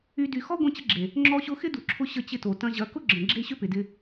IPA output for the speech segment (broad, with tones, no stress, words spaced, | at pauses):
y˧ dy˧ xɔ˦ ɡʷẽ˧t͡ɕə˧ɡ͡ǁe˨ | ŋ͡ǁɔ˧ɕʊ˧ xɪ˦du˨ǁʰʊ˧ ɕə˧t͡ɕɪ˧to˨ tɐ̃˧ʑɐ˨˦ kʊ˦ɡ͡ǁə̃˨ ɡ͡ǁe˦ɕʏ˦ pɪ˨dɪ˧